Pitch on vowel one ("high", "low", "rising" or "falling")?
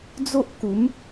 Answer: high